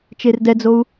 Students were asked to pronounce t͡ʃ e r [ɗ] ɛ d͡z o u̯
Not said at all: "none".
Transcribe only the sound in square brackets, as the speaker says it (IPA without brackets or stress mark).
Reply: d